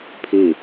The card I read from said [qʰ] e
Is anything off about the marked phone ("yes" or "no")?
yes